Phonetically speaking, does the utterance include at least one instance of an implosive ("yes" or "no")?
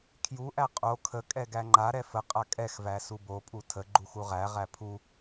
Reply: no